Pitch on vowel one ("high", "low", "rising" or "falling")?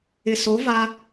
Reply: low